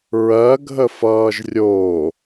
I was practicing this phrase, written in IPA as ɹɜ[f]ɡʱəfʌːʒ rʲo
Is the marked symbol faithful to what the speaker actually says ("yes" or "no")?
no